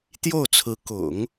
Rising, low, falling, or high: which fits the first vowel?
falling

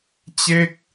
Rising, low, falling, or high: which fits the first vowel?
falling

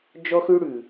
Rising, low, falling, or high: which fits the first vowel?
high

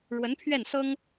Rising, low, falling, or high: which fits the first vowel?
rising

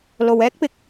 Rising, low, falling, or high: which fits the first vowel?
low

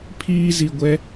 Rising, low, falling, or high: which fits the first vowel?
high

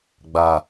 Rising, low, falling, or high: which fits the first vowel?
low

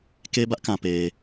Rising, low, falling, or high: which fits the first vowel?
high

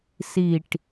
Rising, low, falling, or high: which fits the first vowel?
low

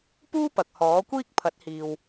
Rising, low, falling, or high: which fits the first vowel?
high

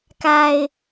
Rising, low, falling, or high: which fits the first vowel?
low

